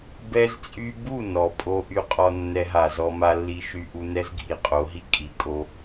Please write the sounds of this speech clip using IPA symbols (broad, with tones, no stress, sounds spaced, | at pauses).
b ɛ˧ z t͡sʼ y˧ b u˦˨ n ɔ˨ pʼ o˧ ʔ y˧ qʼ ɔ˧ nː ɛ˧ ɦ a˨ z ɔ˧ m a˦ lː i˦ ʃ y˦ ʔ u˦ n ɛ˦ z ɡʱ i˨ qʼ o˨˦ ɦ i˦ kʼ i˨˦ kʼ o˧